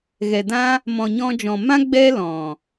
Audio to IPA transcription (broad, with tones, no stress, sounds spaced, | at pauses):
ɣ ɛ˨ d ã˦ | m ɔ̃˨ ɲ ɔ̃˧ d͡ʒ ɔ̃˨ m ã˦ ɡ͡b ɛ˦ l ɔ̃˨